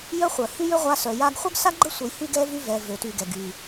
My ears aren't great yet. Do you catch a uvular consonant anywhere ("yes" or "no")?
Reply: yes